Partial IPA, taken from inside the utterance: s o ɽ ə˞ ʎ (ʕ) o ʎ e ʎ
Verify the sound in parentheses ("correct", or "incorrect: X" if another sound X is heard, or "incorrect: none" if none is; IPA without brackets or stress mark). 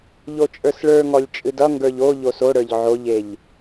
correct